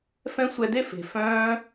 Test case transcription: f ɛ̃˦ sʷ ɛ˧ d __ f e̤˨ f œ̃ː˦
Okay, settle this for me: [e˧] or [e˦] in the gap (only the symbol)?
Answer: e˦